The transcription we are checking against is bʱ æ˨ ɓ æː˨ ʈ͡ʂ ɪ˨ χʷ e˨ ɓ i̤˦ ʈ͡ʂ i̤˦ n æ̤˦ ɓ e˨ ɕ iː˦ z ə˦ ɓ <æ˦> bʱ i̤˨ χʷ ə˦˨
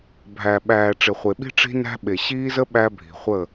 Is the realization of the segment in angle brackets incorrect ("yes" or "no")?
no